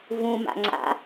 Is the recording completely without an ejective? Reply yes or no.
yes